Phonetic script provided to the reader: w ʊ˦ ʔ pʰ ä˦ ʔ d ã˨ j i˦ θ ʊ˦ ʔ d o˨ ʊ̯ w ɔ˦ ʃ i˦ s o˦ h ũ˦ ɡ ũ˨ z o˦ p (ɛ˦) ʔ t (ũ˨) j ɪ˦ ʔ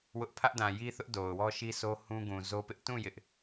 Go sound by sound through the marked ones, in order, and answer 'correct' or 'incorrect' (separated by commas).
incorrect, incorrect